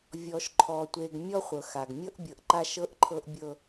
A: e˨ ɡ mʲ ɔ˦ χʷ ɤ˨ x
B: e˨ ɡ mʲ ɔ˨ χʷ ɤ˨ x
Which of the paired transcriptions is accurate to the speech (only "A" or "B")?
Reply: A